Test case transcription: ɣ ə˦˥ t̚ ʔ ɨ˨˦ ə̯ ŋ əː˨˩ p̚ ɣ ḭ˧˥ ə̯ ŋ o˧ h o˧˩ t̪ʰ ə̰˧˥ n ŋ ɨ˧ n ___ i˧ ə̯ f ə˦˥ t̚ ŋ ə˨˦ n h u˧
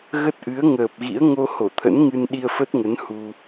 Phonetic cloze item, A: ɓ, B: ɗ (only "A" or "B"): B